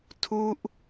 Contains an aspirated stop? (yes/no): yes